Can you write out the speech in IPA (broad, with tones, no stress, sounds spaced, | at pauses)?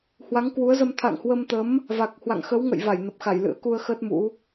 h w a˨˦ ŋ k w u˨˦ ə̯ z ə˧ m t̪ʰ a̰˧˨ ŋ h w ə˧ m t̪ ə˨˦ m | v a˨˩ k̚ h w a̰˧˨ ŋ x ə˨˦ w ŋ ə̰˧˨ j v a˧˩ j n ə˨˩ p̚ x a˧˩ j l ɨ̰˧˥ ə̯ k u˧ ə̯ x əː˦˥ t̚ m ṵ˧˥